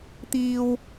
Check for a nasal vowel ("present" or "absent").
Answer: absent